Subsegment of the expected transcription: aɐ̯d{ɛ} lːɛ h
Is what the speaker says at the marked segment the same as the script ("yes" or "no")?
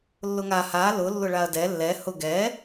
yes